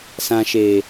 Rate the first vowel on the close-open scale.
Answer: open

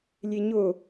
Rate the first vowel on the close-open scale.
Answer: mid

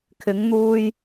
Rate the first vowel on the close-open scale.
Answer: close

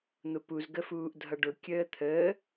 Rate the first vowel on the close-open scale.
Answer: close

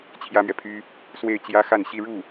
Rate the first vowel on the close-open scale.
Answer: open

